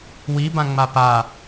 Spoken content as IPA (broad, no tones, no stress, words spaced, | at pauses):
wibã ŋ͡mapa